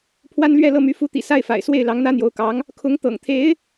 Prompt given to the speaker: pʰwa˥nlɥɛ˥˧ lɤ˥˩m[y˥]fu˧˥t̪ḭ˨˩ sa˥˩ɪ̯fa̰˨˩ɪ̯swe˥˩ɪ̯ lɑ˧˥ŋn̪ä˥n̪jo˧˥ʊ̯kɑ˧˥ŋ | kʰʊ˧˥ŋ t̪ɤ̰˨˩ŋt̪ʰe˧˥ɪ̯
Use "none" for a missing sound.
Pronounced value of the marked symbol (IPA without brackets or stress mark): y˧˥